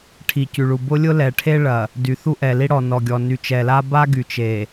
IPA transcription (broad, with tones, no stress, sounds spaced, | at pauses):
ʈʰ i˨ c y˨ ɭ u˨ b ʊ˦ lʲ ʊ˦ l ɛ˨ ʈʰ e˦ ɭ ɐ˨ | d y˨ θ u˦ ʔ ɛ˨ l i˦ ɽ ɔ˨ n ɔ˨ ɡʲ ɔ˨ n y˨ t͡ʃ ɛ˨ l a˦ b a˦ ɡ y˨ t͡ʃ e˨